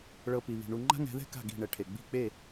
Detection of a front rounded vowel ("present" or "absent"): absent